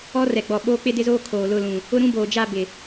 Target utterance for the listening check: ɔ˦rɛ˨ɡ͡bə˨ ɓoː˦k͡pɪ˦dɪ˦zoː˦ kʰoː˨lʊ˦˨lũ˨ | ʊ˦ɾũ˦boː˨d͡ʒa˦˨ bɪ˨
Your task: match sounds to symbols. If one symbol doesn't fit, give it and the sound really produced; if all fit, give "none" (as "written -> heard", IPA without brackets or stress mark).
ə˨ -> ɔ˨